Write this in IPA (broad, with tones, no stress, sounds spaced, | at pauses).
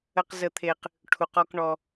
ə˦ q z ə˦ t̪ʰ e˦ q | ʈʰ u˧ q ɔ˦ k ɳ ɔ˦